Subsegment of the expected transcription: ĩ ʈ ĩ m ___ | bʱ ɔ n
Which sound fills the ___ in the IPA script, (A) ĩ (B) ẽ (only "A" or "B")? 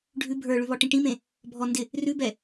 B